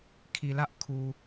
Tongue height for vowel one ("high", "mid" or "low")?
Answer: high